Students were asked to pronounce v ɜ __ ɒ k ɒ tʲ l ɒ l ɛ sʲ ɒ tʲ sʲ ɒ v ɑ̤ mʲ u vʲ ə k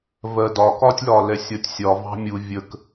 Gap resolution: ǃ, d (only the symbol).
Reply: d